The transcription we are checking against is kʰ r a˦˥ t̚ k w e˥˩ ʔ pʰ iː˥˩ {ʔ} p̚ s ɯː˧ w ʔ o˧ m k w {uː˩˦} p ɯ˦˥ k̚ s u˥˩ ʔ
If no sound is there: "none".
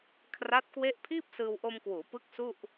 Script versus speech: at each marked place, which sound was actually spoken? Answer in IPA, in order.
none, uː˩˦

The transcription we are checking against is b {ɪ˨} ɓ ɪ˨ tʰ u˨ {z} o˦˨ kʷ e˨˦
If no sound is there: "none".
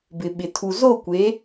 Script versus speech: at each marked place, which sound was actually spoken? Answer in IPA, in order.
ɪ˨, z

